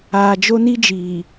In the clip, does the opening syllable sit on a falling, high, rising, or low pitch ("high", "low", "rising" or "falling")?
low